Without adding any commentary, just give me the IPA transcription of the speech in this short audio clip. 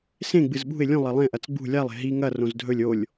s ẽ ɡ͡b ɨ z ɓ ṳ ɪ̯ lʲ ũ lˠ ɐ lˠ ẽ ʔ ɐ t͡s ɡ͡b ṳ lʲ a lˠ e̤ ɦ i ŋ ɐ r õ z dʱ ɵ lʲ o lʲ

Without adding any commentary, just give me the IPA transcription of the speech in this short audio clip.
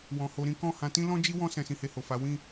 w ɔ̃˨ h o˧ ɾ ĩ˦ k ɔ̃˦˨ h ã˨˦ t ĩ˦ l ɔ̃˦ d͡ʒ i˦ w ɔ̃˦ s ɛ̃˧ s ĩ˧ h e˧ h o˨ f a˨˦ w ĩ˦˨

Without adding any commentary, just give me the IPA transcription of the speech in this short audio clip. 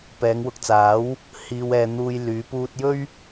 p ɛː˨˧ ŋ w ʊ˨˥ k̚ t͡s aː˨˥ w | h iː˧ w ɛː˧ n̪ uː˧ j l yː˨˧ p uː˧ t̚ j ɵ˥ ɥ

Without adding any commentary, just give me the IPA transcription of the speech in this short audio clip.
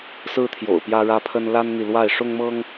s ɹ̩˦ t̪ʰ j o̰˨˩ ʊ̯ p j ä˦ ɻ ä˦ pʰ ə˦ n l a˦ n n̪ i˨ l w a˥˨ ɪ̯ ʂ ʊ˦ ŋ m ɤ˦ ŋ

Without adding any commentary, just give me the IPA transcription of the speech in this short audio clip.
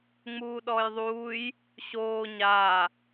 ŋ͡m uː ɗ ɔː j ðˤ uː j | ɕ oː ɲ aː

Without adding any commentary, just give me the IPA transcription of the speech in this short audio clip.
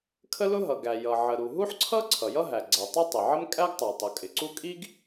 kʰ ə˥ l ʊ˥ ɦ ʌ˩ ɡ æ˩ j ʌ˩ ʕ ə˩ ɾ u˩ ɦ u˥ ħ ǀʰ ʌ˥ ǀʰ ʌ˩ j ʌ˥ ɦ æ˩ ɡ͡ǀ æ˩ tˤ ə˥ tˤ ɪ˩ ʕ ə˥ m kʼ æ˥ ɡ tˤ ə˞˩ tˤ ʊ˩ kʼ ɪ˩ ǀ u˥ kʼ i˥ ɡ

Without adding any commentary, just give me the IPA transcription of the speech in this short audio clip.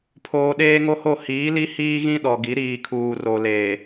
pʰ oː˨ ɗ eː˦ ŋ o˦ h o˦˨ h iː˨˦ l i˦ h iː˦ ɣ ĩ˦ ɗ ɔ˨ ɡ i˨˦ ɾ iː˨ kʰ uː˨ r o˨ l eː˨

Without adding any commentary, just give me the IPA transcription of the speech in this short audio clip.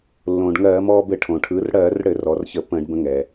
lː õː˩ ɖ ŋ ɜː˧˩˧ m ɔː˧ b ɘ˧˩˧ ʈʰ õ˩ ʈʰ ɯ˩˧ r ɽ ɜː˧˩˧ r ɽ ɘ˧˩˧ r ɔ˩˧ r ç ə˧˩˧ p ə̃ː˧˩˧ ɖ b ə̃˧ ŋ ɛː˩

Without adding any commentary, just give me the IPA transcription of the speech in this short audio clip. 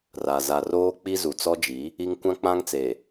r a˨ z a˨ r oː˦ k͡p i˦ z u˨ t͡s ɔ˦ d͡ʒ i˨˦ | i˦ ŋ kʷ ã˦ k͡p ã˦ ŋ t͡s e˨

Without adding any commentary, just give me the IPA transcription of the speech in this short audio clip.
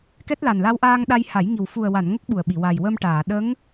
k ɛ˦˥ t̚ l a˨˩ n l a˧ w ʔ aː˧ ŋ ɗ a˧ j h a˨˩˦ j ŋ i˨˩ w f u˨˩ ə̯ w a˨˩˨ n ŋ ə˦˥ k̚ ɓ u˨˩ ə̯ ɓ i˨˩˨ w a˨˩ j w ə˧ m ʈ aː˨˩˨ ɗ ə˧˥ ŋ

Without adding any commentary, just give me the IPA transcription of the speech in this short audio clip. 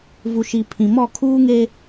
v u˨ ʃ i˨ pʰ ĩ˨ m ɔ˦˨ kʰ uː˦ ŋ e˦

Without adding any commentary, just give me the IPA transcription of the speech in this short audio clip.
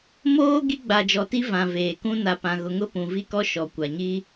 m oː˦ ɡ i˦ ɡ͡b a˨ d͡ʒ ɔ˨ t i˦ v ã˨ v eː˨ k ũ˦ n a˨ p ã˨ ɣ ʊ˨ ŋ ʊ˦ p ũ˨ v i˦ k ɔ˦ ʃ ɔ˨ kʷ a˨ ɲ i˦

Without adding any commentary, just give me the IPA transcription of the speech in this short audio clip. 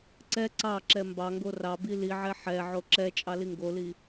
ǀ ɛ ǀ ɑ ǁ ɛ m b ɑ ŋ ɡ o r ɑ b i l i ʕ ɛ ħ ɛ ʕ o ǁ ɛ t͡ʃʼ ɑ l i ŋ ɡ o l i

